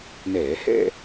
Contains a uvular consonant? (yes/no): no